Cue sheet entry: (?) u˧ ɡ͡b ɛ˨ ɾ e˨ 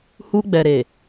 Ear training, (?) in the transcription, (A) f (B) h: B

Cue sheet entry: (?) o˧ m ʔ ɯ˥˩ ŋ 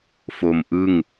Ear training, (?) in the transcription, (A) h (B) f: B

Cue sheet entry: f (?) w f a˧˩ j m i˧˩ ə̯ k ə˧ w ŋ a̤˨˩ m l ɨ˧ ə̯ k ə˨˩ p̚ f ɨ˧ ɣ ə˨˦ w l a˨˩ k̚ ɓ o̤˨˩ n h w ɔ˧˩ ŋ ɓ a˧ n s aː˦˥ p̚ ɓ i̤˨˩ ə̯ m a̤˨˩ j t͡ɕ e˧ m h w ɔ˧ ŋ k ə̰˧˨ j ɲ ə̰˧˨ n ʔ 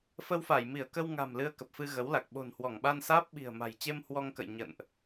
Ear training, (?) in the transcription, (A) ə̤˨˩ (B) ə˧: B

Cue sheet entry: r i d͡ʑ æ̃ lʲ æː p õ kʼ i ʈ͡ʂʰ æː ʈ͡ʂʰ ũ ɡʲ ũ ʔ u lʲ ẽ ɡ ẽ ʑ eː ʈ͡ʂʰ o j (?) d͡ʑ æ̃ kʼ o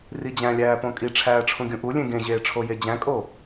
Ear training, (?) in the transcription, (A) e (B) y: A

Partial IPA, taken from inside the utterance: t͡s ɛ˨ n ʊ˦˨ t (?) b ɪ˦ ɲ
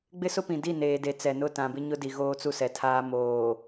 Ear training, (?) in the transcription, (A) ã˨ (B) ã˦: A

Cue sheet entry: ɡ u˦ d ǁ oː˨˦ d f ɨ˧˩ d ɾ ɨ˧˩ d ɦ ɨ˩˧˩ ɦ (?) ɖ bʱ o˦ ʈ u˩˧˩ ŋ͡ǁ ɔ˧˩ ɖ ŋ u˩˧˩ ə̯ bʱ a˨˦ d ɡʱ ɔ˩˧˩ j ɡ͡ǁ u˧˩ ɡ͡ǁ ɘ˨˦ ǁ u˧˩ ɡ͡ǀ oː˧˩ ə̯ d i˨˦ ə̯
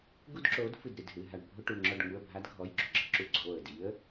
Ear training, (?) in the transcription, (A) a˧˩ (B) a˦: A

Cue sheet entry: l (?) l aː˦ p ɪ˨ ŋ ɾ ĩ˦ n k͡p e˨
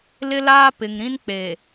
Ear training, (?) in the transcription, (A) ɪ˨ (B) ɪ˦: B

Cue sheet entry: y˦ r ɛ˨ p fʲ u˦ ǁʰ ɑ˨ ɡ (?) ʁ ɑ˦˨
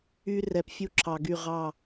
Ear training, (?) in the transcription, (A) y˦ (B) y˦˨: B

